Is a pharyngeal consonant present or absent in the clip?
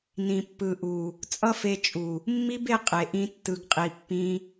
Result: absent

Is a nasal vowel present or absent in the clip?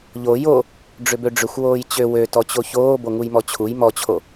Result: absent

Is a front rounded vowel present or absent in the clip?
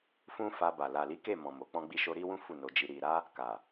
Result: absent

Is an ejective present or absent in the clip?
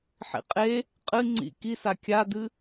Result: present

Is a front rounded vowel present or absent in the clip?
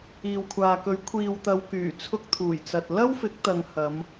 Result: present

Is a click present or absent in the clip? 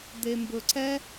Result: present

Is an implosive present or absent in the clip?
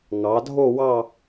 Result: absent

